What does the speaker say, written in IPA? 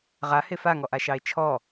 ʁ a h e f a ŋ ɔ ʔ a ʃ ɑ e̯ t͡ʃʰ ɔ

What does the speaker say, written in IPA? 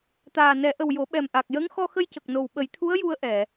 t̪ aː˨˩ n ɛ˨˩˦ ʔ ə˨˩ w j o˨˩˦ ɓ ɛ˨˩ m ʔ a˨˩ k̚ j ə˧˥ ŋ x ɔ˧ x ə˧ j c ə˨˩ k̚ n o˨˩ w ɓ ə˨˩˦ j t̪ʰ u˧˥ ə̯ j u˧ ə̯ ʔ ɛ˨˩˨

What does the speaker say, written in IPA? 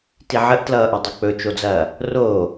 t i ʕ ə ʔ t l ʌː ʔ ɵ dˤ o k͡p ɵ t͡ʃ o d͡z ɐː | r oː

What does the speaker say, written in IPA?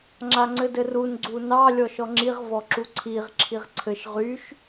ŋ͡ǁ a ŋ͡ǀ ɘ d ɘ r u n ɡ͡ǀ u n ɑ lʲ ɔ ʃ ɔ ŋ͡ǁ i ʁ v ɔ ǁ u ǀʰ i ʁ ǁʰ i ʁ ǀʰ ɘ ʃ ʁ y ʃ

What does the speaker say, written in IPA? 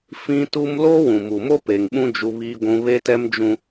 f ĩ˦ t u˦ m l oː˦ w ũ˨ m u˨ m o˦ p eː˨ ŋ ɓ ũ˦ d͡ʒ u˦ β iː˦ ɡʷ ũ˦ β e˦ t ɛ˦ m d͡ʒ ũ˦

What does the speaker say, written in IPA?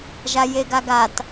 ʒ a j e ɡ a ɡ a t

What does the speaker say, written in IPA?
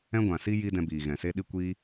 ɛ̃˦ ɡʷ ã˨ s i˦ j i˦ d ɛ̃˧ b iː˨ ɣ ɛ̃˨ s e˧ ɗ i˧ kʷ iː˧

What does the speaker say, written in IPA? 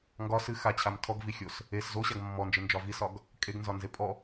ŋ ɡ ɒ s ɨ x a t͡ɕʰ a m tʰ ɔ ɡ v i xʲ o s | e s z o ɕ a ɡ mː ɔ n d͡ʒ ɨ n d͡ʒ ɒ v i s ɒ ɡ | kʼ e ɡ n z ɒ n z e pʼ ɔ

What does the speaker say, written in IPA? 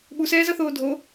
ɓ u s ɛː z ʌ θ oː dʱ o

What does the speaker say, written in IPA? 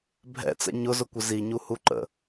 bʱ ɛ̰ t͡s ɛ̰ ɲ ʊ z ʊ kʷ ɪ z i ɲ u h u ǃ ə̰

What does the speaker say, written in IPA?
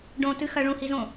ɖ õ t ɨ x ɐ ɭ ũ h i z õ

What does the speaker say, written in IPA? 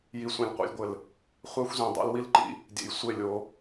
j i˨ sʷ ẽ˨ lʲ qʷ ḛ˨ lʲ ɡʷ ɘ˨ l | χʷ æ˦ xʷ z ĩ˨ dˤ ḛ˦ l w i˦ l ǃ ḭ˦ | dʲ ḛ˨ j sʷ e˦˨ lʲ o˨˦

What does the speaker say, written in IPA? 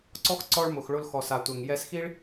ǀ ɔ˦ x ǀ ɔ˧ ɭ m ʊ˨ x ɭ ʊ˧ l x ɔ˨ s a˨ tʷ ɛ˨ ŋ j ɛ˧ s x i˦ ɭ

